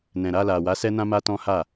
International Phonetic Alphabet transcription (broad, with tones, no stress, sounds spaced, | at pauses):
n ɛ̃˨ ɾ a˧ l a˨ w a˨˦ s ɛ˦ n ã˦ m a˦ t ɔ̃˦ h a˦˨